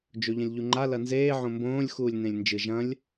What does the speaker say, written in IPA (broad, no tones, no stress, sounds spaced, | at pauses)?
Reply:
d͡ʒ o ʎ ɐ̃ lʲ ʎ u ŋ͡ǃ a l ɐ n z eː ʕ õ m b õː lʲ x uː lʲ n ẽ lʲ n d͡ʒ ɨ ʒ ɐ̃ lʲ